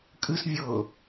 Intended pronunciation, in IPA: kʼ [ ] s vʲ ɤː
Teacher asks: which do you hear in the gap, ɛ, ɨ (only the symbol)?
ɨ